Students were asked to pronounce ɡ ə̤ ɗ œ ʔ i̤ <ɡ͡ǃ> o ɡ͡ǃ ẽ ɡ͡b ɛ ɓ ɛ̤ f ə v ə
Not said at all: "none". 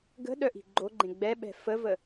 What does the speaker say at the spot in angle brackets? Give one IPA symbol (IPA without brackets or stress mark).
ɡ͡ǃ